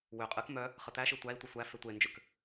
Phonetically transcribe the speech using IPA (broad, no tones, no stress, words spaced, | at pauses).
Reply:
wʏ qʼɨk mœ | χət̪æʃɨ tʷæi̯tʷə sʷæ fetʷend͡ʒʏk